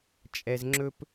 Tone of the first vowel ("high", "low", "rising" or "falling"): low